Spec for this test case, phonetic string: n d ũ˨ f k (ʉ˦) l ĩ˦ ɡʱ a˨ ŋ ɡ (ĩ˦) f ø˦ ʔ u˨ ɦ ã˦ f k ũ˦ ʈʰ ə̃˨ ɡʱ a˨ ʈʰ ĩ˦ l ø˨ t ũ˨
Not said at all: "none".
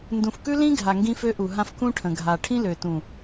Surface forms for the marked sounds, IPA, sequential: ʉ˦, ĩ˦

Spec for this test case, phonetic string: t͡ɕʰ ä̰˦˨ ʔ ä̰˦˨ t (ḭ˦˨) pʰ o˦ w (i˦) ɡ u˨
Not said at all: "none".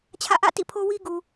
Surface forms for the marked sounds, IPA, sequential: ḭ˦˨, i˦

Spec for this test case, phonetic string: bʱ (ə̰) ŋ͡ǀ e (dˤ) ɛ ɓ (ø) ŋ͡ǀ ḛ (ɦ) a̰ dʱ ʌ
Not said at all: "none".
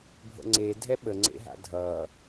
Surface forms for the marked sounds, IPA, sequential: ə̰, dʱ, ə, ɦ

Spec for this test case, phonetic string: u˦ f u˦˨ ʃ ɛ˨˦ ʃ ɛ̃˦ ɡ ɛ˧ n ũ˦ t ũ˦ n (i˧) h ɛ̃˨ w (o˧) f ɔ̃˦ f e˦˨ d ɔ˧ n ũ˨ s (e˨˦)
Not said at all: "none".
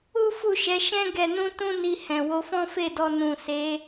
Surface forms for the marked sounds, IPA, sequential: i˧, o˧, e˨˦

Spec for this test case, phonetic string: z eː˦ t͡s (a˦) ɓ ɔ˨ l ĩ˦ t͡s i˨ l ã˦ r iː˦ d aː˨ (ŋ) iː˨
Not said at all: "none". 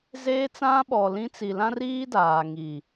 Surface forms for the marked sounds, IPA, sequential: ã˦, ŋ

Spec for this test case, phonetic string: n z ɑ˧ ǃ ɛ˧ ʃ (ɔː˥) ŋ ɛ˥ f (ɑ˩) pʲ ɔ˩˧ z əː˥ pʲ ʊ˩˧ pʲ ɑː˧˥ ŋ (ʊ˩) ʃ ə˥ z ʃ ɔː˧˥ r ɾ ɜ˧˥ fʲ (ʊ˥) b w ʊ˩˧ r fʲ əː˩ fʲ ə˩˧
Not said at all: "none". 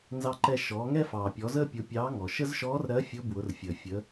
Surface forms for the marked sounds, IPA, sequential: ɔː˩˧, ɑː˩, ɔ˩, ʊ˧˥

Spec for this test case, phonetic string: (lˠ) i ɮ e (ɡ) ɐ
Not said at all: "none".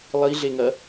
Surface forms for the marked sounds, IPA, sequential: lˠ, ŋ

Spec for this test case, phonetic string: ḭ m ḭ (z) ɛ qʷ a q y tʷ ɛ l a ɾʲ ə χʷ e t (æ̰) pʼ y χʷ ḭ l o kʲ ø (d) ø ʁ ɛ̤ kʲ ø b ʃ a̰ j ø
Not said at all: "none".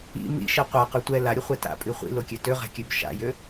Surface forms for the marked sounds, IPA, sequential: ʃ, a̰, t

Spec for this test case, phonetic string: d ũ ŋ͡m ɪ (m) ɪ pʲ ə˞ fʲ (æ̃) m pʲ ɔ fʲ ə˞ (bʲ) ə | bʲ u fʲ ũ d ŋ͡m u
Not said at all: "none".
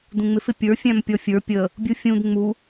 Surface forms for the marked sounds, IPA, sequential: f, æ̃, pʲ

